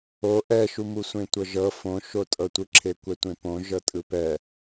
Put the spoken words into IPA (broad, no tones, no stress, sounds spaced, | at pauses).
o ʔ ɛ ʃ u m u sʷ ẽ tʷ ɤ ʒ ɤ f õ ʃ o tʼ ɤ tʷ ɯ ǁʰ e kʷ ɛ tʷ ẽ p õ ʒ ɤ tʼ ɯ p ɛ